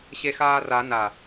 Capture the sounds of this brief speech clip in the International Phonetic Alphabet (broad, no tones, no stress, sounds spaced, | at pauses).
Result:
ɕ e x aː r a n a